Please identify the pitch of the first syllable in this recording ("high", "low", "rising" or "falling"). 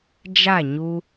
falling